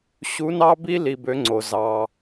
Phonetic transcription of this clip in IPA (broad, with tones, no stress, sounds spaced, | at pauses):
ɕ u˧˥ n ɑ˥ b i˥ l i˧ b ø˧˥ ŋ͡ǀ o˩ z ɑ˩